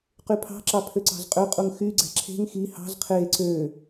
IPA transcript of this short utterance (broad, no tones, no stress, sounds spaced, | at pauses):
q y pʰ ɑ̤ ǁ ɑ pʰ ø ǀ ɑ̤ z qʼ ø qʼ u ŋ x y ɡ͡ǀ æ̤ ǁʰ e̤ ŋ x i h ɑ̤ z qʰ e ǀ ø